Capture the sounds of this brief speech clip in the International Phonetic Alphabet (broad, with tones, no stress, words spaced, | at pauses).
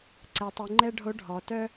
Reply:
ǀɛ˩˧tˤy˩˧ ŋ͡ǃɛ˥ ɖʱo˧˥ ɖʱɔ˩˧tœ˥